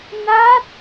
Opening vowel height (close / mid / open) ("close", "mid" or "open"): open